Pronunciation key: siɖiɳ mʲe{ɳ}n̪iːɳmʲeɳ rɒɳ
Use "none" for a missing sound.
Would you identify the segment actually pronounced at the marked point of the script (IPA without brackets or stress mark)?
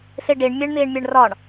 ɳ